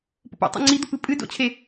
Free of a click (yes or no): no